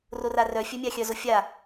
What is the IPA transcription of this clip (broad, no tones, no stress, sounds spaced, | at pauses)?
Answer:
r o r a r œ fʲ œ mʲ a xʲ œ z o fʲ a